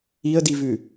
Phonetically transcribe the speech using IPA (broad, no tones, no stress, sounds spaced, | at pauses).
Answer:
i ə̯ d i v ʉ